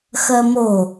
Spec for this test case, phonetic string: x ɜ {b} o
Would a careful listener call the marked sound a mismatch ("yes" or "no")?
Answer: yes